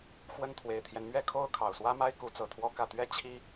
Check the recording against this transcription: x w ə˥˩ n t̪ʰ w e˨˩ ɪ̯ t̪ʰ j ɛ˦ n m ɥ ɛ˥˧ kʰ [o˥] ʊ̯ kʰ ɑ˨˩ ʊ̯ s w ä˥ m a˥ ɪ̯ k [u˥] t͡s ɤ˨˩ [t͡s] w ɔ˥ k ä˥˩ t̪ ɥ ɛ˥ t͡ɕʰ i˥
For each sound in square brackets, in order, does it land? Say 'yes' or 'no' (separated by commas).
no, no, no